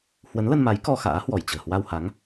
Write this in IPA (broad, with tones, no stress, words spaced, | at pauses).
hwə˨˦nlə˧nma˨˦j kɔ˧xa̰ː˧˥hwɔ˧˩j t͡ɕə̤ː˨˩hwa˧wha˨˦ŋ